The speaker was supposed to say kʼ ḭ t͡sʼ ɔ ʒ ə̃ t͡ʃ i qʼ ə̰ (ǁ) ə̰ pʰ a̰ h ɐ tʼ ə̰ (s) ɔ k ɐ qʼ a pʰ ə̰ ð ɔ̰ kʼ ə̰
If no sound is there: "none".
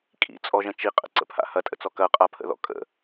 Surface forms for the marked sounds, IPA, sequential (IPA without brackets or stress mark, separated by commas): ǀ, t͡s